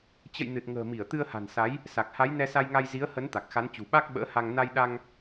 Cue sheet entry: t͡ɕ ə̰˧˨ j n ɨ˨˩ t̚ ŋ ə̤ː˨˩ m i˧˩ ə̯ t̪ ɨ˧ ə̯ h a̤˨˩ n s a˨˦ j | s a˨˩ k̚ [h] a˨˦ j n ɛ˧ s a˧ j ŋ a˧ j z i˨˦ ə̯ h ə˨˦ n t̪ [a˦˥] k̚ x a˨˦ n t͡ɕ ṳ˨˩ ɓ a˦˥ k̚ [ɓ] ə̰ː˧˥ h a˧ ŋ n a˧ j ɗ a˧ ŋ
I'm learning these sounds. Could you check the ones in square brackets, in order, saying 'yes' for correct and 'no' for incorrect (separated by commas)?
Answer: yes, no, yes